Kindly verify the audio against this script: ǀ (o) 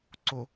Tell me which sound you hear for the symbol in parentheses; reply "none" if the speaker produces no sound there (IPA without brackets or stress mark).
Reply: o